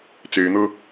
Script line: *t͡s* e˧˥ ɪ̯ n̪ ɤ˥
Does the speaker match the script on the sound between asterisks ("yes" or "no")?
yes